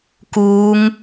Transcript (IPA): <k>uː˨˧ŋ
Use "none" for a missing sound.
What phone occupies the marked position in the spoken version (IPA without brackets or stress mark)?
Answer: k